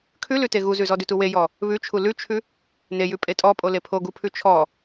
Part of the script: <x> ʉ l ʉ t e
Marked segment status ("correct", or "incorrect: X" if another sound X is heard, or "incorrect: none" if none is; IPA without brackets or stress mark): incorrect: kʰ